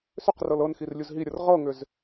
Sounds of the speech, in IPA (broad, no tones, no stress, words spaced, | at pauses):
sʏqrɤl ɤnxir lʲuzɦiɾʲɤr ʁɤŋʏz